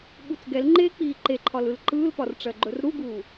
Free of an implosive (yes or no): no